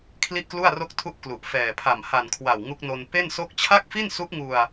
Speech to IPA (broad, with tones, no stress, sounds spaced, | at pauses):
kʰ l i˥˩ ʔ k l u˥˩ a̯ r o˥˩ k̚ tʰ u˥˩ ʔ k l u˨˩ ʔ f ɛː˨˩ pʰ a˨˩ m h a˨˩ n kʰ w a˨˩ w ŋ u˦˥ k̚ n o˧ n p e˥˩ n s o˥˩ k̚ t͡ɕʰ a˥˩ k̚ f i˥˩ n s u˦˥ ʔ ŋ u˧ a̯